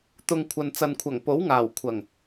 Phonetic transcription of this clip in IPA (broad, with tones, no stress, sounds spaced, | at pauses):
t̪ ʊ˨ ŋ kʷʰ ɐ˨ n t͡s ɐ˨ n kʷʰ ɐ˨˩ ŋ p o˨˥ w ŋ aː˨˩ w kʷʰ ɐ˨˩ ŋ